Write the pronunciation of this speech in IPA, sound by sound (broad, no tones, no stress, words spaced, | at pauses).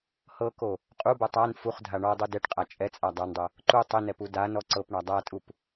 hɤko | qʼubo tˤan fuχdʱa ɳɔ dˤudɛʈqʼa t͡ʃʼɛt͡sʼa dˤandˤɤ | ǃu tˤɪnɛp udanɔ ǀɤpɳa dˤatʼup